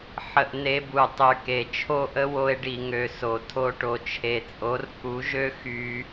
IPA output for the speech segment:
ħ ə˧ ʔ n e˧ b u˨ tˤ y˨ k e˨ t͡ʃʰ o˦ ʔ ə˦ w o˧ e̯ ɖ i˨ ŋ ø˨ s o˨ tʰ o˧ ʈ o˨ t͡ʃʰ e˨ t͡sʼ o˨˦ r k u˨˦ ʒ ø˦ x y˧

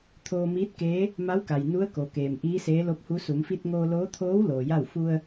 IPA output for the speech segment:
t̪ʰ oː˧ m iː˧˥ t̚ k eː˧˥ | m a˧˥ w k a˩ j n u˧˥ ə̯ k o˩ k eː˩ m ʔ iː˧˥ s eː˧˥ l o˧˥ p̚ h u˧˥ s u˩˧ m f i˧ t̚ ŋ oː˧ l oː˧˥ t̪ʰ oː˧˥ w l oː˩ j a˥˨ w f u˧ ə̯

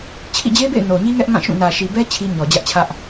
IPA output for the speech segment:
t͡ɕʰ ḭ˦˨ d͡ʑ e˦ b ḛ˦˨ ɪ̯ n o˨ ɲ i˦ ŋ ɛ˦ ʔ ŋ ã˦˨ ʃ ũ˦˨ n ä˨ ʃ i˨ b ɛ˦ t͡ɕʰ i˦ ɲ ɔ˨ d͡ʑ ä˦ ʔ t͡ɕʰ ä˦ ʔ

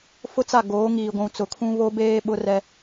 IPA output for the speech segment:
f ʊ˦ t͡s a˦˨ ɡ oː˨˦ ŋ iː˨ ɡʷ ũ˨ t͡s ʊ˨ kʰ ũ˦ β o˦ b eː˦ ɓ ʊ˦ r ɛ˦

